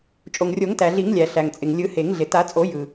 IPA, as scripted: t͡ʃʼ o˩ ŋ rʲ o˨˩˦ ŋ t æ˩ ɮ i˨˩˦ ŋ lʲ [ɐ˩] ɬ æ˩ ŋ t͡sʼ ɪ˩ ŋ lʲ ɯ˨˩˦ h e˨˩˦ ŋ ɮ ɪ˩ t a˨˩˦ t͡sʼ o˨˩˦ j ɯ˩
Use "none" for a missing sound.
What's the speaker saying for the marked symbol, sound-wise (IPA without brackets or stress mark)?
æ˩